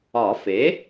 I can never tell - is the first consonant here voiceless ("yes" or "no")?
yes